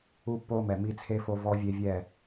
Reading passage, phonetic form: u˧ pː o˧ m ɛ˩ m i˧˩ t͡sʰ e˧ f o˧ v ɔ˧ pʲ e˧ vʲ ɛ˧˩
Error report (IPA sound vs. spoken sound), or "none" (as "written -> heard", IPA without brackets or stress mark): pʲ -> vʲ